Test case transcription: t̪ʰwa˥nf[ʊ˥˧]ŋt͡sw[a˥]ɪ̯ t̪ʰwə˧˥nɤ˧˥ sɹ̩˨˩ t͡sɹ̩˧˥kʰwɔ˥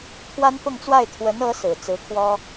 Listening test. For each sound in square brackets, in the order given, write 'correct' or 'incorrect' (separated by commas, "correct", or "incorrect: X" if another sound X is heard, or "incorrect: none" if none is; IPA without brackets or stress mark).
correct, incorrect: a˥˩